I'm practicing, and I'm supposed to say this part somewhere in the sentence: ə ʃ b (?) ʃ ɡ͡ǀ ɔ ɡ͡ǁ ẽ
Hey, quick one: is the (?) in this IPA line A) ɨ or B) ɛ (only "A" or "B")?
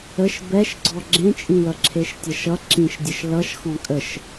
B